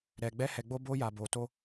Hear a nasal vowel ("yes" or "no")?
no